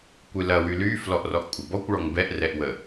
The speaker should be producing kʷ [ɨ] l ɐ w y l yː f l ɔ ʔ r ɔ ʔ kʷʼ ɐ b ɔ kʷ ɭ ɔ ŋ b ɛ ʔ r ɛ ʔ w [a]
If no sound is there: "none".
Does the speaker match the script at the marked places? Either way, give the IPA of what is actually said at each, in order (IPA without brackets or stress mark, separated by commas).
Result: ɨ, ə